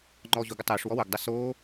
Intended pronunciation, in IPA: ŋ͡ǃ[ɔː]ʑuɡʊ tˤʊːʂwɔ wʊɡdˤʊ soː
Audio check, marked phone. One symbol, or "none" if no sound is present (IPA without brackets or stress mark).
ɔː